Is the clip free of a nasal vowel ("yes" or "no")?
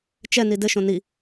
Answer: no